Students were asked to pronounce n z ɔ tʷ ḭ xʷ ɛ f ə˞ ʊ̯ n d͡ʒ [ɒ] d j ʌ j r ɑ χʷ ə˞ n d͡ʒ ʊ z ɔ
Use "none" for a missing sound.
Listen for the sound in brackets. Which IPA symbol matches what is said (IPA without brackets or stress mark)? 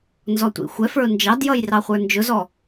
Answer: ɑ